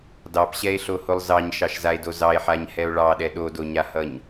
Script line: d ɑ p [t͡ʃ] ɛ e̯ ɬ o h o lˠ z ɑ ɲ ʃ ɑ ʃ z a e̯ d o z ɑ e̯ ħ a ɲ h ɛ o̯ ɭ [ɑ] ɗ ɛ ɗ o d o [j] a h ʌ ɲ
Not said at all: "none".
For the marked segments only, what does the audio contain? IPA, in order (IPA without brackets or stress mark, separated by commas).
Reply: ɕ, ɑ, ɲ